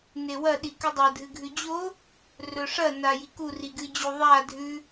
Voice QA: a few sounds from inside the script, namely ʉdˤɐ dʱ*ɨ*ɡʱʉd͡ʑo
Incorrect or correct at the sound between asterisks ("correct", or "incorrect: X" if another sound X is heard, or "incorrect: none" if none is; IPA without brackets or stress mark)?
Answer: correct